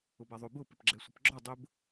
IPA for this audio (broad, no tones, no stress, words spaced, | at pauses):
ʊbaðˤobʊ pɪpɡ͡ǁɛsʷɪpɡ͡ǁɔ dˤʊb